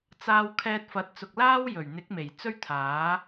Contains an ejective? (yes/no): no